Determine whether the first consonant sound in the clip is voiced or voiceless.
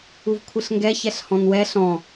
voiced